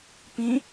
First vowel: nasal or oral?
nasal